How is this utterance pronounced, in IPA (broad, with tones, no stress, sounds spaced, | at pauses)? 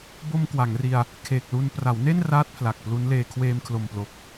b o˧ m k w a˩˦ ŋ r i˧ a̯ | kʰ eː˨˩ k̚ l u˧ n p r a˩˦ w n e˥˩ n r aː˦˥ t̚ pʰ l a˨˩ k̚ p l u˦˥ n l eː˧ kʰ w eː˧ m kʰ l o˨˩ m p l o˨˩ k̚